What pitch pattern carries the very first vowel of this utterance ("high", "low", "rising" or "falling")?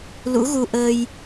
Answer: rising